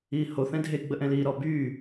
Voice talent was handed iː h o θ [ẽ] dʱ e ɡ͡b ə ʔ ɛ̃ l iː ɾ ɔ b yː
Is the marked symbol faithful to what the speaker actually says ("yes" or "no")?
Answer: no